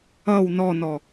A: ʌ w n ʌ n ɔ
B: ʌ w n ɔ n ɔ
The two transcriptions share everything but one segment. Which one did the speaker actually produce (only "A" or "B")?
B